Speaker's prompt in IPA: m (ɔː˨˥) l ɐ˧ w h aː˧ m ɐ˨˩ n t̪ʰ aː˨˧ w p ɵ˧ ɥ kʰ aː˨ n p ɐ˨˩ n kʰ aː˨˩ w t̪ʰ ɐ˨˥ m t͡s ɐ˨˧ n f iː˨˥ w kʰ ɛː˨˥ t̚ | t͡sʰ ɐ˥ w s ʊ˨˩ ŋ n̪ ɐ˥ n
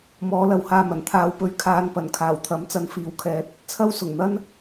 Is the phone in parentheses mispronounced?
no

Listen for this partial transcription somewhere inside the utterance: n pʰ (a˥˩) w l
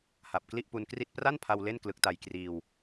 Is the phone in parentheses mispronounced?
yes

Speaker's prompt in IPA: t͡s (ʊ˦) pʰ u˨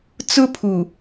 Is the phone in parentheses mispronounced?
no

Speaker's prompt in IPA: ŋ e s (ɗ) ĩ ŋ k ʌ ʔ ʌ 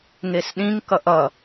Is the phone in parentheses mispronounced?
no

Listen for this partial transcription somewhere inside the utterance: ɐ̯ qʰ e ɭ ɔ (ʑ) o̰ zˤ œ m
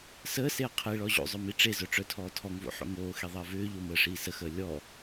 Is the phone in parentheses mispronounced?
no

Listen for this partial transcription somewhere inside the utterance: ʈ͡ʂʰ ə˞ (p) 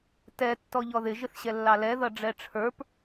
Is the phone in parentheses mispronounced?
no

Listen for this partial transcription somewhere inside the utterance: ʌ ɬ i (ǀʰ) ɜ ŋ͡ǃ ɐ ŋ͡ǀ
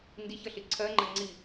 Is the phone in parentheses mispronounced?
no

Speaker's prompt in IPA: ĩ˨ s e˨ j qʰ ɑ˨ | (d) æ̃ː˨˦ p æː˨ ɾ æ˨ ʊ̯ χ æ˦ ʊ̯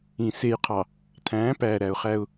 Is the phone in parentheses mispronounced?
yes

